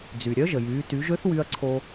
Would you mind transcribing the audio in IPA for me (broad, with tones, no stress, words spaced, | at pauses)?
d͡zy˩ ɾʲœ˧˥ʒə˩jyː˩˧ ty˩˧ʒø˧˥θwy˧ɐ̯ ǀʰo˧